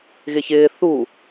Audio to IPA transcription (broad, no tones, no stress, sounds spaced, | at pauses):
ɣ ɪ ç ɪː θ u